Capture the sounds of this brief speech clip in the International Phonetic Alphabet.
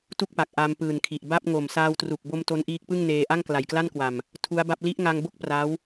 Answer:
t u˥˩ k̚ p a˨˩ k̚ ʔ a˧ m p ɯː˨˩ n kʰ i˨˩ ʔ b a˥˩ p̚ ŋ o˨˩ m s aː˧ w t r u˨˩ k̚ b o˧ m t o˦˥ n ʔ iː˦˥ k̚ p ɯ˥˩ ŋ n eː˧ ʔ a˥˩ ŋ k l a˨˩ j k l a˥˩ n k w a˨˩ m | tʰ u˦˥ a̯ b a˥˩ p̚ l i˦˥ ʔ ŋ a˧ ŋ b o˥˩ k̚ p r a˦˥ w

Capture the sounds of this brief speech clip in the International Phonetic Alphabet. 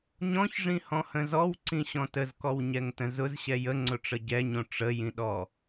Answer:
ɲ ɔ̃ ç ʐ ĩ h ɔ̃ h ə̃ z ɔ w ǀ ĩ ɕ ɔ̃ t ə z k ɔ w ɲ ɛ ŋ t ə̃ z ʊ z ɕ ɛ j ə ŋ͡ǀ ʊ ʈ͡ʂ ə ɟ ɛ ɲ õ ʈ͡ʂ ə j ĩ ɗ ɔ

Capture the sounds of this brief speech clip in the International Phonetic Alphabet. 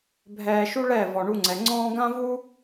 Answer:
bʱ ɛː˧ ʃ u˦ ɭ ɛ˦˨ v ɔ˨ ɳ u˧ ŋ͡ǀ ɛ˨ ŋ͡ǀ ɔ̃ː˦ ɡ ã˦ v u˦

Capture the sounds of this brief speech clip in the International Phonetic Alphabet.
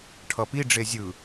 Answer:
ʈʰ ʌ p i ɖ͡ʐ e zʲ ɯ

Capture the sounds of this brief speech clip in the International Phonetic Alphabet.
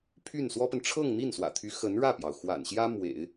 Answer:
pʰ y˥˩ n s w ɔ˥ p ə˨ n ʈ͡ʂʰ ɤ˥˧ ŋ n̪ i˥˩ n s w ä̰˨˩ t̪ʰ y˧˥ x ə˧˥ n ɻ ä˥˩ p j ɑ˩ ʊ̯ x w a̰˨˩ n ɕ j ä˥ m w ḛ˨˩˦ ɪ̯

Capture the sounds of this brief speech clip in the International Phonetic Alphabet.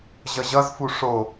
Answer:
ʑ ʌ ʑ ʌ z f u ʂ o

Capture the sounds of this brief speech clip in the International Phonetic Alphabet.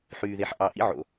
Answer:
ħ yː˨ ð e˨ ħ ʔ ɑ˨ ʔ ḭ˦ ʕ o̰˨

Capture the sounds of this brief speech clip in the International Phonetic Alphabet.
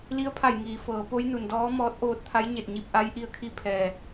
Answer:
l i˧˥ ə̯ pʰ a˧˩ j ŋ iː˩˧ f ɤː˩˧ p o˧˥ j n u˩ n d ɔː˧˥ m ɔː˧˥ t̚ ʔ oː˧ t̚ t̪ʰ a˧˥ j ɲ e˧˩ t̚ ɲ i˧ p̚ ʔ a˧˥ j ʔ i˧ ə̯ kʰ i˧˥ pʰ ɛː˩

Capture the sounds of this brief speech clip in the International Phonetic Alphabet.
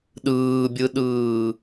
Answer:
ɗ ɯː bʲ ɯ ɗ ɯː

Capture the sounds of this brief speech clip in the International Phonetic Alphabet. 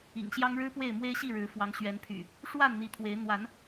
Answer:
ḭ˨˩ ŋ ɕ j ɑ˦ ŋ ɻ ɻ̩˦ p w e˥˨ ɪ̯ m w e˦ ɪ̯ ɕ i˥˨ ɻ ɻ̩˨˦ f w ɑ˨˦ ŋ ɕ ɥ ɛ˨˦ n pʰ y̰˨˩ | ʂ w a˥˨ n n̪ i˨˦ t̪ʰ w e˨˦ ɪ̯ n̪ w a˨˦ n

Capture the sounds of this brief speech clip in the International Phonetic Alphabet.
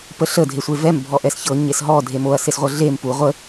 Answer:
p ə ɬ ə dʱ e sʷ e v ɛ m bʱ ɔ ʔ ɛ s ç ɤ ɲ e s ɦ ɔ dʱ e m o ɐ̯ s e s ʁʷ ɤ ɮ e m p u ʁʷ ə

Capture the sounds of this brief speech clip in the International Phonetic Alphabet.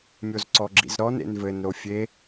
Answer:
mʲ o z ǀ ɔ ɡ͡ǁ ḭ z ɾ ɔ n ḛ n v ɘ n ɾ o fʲ e

